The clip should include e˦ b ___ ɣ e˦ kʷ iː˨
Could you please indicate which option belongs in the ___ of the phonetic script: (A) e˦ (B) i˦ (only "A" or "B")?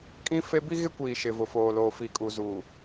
B